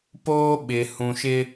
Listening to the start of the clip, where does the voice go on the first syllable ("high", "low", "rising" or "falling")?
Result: high